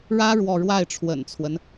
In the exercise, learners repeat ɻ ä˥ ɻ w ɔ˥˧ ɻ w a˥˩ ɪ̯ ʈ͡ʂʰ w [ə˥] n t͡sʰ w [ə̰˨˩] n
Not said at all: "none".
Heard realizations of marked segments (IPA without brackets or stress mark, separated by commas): ə̰˨˩, ə˦